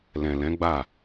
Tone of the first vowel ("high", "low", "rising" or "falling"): low